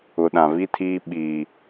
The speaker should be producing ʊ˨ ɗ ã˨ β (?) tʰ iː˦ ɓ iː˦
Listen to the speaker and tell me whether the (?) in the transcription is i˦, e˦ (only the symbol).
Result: i˦